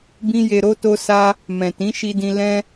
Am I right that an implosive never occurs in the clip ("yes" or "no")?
yes